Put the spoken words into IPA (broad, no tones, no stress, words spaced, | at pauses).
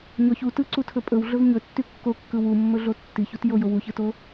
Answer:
ɲɔç u tɯǀutʰɵ pʼɵwɮɵv ɲɵtːy kːokːɯ wumːɵɮo tːiçutjojow uçɯto